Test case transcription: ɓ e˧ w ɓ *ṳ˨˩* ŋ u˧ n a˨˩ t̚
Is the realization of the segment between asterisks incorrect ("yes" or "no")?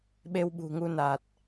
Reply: no